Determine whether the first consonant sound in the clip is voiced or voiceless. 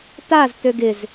voiceless